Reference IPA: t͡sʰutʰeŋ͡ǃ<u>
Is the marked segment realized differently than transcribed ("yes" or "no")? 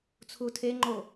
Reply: yes